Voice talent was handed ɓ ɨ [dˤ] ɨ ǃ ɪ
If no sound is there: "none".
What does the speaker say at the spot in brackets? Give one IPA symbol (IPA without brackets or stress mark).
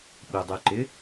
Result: dˤ